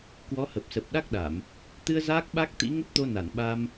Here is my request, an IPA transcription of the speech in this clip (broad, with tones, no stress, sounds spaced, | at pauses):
k w ɔ˨˦ h ə˨˩ p̚ s ə˨˩ p̚ ɗ a˦˥ k̚ ɗ a˧˩˨ m | t̪ ɨ˧ ə̯ z aː˦˥ k̚ ɓ a˦˥ k̚ t̪ ḭ˧˥ ŋ ə˦˥ p̚ t̪ o˧ n a˧˩ n ɓ a˧ m